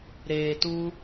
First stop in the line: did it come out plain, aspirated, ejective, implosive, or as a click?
plain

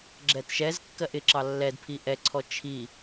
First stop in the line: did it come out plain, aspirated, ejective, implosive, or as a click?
click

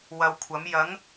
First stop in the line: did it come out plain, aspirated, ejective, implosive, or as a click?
aspirated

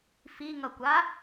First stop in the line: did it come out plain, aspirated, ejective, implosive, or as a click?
plain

